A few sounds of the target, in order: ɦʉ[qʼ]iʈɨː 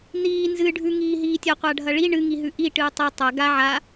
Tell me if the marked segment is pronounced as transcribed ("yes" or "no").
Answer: no